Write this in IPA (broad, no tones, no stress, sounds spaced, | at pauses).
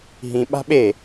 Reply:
ɦ ĩ ɓ a̤ ɓ e